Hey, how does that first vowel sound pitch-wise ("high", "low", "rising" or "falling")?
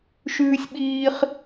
high